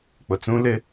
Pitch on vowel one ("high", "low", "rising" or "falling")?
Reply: low